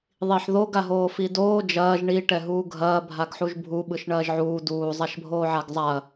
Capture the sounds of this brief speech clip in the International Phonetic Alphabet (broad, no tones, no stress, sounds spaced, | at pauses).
ðˤ i ħ ð o ɡ a ɦ oː f i d oː d͡ʒ ɐː ʒ ɳ i ʈ ɛ ɦ uː ɡʱ ɐː bʱ a ɡ ħ u ʒ bʱ u ɓ ɯ ʃ ɳ ɐː ʒ ʕ uː d uː zˤ a ʃ bʱ oː ʕ a ɡ zˤ a ɐ̯